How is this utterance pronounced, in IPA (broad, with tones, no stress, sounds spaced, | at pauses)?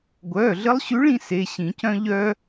ɡʷ œː˩˧˩ ɮ ə˧˥ lˠ ɕ ʉ˧˥ ɭ ĩ˥ s e˩˧˩ ɕ ĩ˨˩˦ c œ̃˥ ʎ œː˥